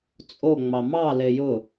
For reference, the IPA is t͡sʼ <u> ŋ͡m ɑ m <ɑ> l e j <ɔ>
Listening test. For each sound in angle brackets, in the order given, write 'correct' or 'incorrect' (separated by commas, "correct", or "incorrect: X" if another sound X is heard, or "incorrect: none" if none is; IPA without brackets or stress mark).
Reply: incorrect: o, correct, incorrect: ʊ